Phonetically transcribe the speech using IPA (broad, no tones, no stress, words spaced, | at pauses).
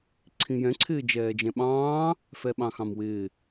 ǀʰĩjɛ̃ ǀʰɪːd͡ʒɛːd͡ʒɛ̃ɓɑ̃ː | fɛɓɑ̃xɑ̃mwɪː